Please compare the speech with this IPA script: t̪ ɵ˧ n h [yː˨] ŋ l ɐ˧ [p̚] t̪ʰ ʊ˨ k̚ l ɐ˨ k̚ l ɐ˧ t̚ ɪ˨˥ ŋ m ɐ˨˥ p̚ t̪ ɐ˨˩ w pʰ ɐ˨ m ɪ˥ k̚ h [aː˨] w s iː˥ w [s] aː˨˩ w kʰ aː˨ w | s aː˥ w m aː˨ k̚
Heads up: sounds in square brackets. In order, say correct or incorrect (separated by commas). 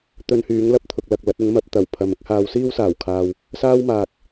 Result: incorrect, correct, incorrect, correct